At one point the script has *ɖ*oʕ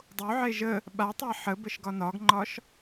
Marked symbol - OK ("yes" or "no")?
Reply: no